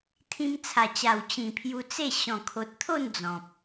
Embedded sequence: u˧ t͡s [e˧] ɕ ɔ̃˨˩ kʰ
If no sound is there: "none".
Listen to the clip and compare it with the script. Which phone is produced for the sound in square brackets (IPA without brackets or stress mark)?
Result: e˥˧